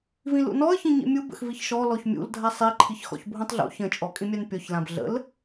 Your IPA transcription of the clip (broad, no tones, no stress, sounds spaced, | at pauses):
v ĩ l ṵ n ɔ ə̯ ç ĩ ɲ ḭ mʲ u b ə̰ x v i ç ʃ ɔ l ɔ ç mʲ ṵ l dʱ a sˤ i ǃʰ i ç x ɔ̰ ç bʱ ũ tˤ ɮ ṵ ç ə̃ t͡ʃʼ ɔ kʼ ĩ mʲ a n pʲ ɔ ç l ã b ɮ ə̰ l